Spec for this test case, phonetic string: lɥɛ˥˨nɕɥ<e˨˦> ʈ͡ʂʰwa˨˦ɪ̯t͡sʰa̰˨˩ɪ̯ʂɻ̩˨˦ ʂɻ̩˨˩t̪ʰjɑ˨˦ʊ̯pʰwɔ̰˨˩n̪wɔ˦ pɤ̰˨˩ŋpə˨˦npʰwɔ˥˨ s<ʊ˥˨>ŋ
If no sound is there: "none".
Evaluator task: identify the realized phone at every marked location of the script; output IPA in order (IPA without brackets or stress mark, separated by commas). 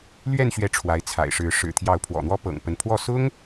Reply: ɛ˨˦, ʊ˦